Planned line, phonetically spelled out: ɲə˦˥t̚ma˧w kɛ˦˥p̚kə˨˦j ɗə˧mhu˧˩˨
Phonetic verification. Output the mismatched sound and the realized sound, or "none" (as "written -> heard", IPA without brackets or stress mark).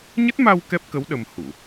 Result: j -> w